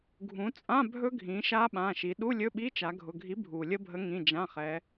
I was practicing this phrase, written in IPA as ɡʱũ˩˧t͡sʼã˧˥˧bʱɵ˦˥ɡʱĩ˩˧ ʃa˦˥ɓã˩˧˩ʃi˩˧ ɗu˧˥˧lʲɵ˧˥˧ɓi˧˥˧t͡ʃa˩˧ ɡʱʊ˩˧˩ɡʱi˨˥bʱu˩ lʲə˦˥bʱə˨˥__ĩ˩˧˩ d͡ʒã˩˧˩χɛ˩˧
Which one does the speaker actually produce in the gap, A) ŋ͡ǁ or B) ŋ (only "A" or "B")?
B